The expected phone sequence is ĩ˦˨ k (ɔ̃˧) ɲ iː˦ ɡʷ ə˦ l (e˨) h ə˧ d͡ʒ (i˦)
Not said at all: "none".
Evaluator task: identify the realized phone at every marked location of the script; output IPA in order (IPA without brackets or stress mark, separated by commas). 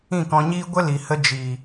ɔ̃˧, i˨, i˨